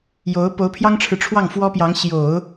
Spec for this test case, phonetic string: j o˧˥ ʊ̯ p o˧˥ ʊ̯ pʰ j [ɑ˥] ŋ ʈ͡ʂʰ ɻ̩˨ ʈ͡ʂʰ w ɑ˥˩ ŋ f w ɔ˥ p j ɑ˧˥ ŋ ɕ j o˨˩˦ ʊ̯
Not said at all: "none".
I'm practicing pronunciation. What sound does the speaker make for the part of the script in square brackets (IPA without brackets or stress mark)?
ɑ˥